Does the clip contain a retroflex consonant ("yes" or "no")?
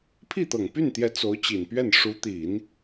yes